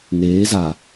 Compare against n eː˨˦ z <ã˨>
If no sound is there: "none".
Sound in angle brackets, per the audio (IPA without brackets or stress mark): a˨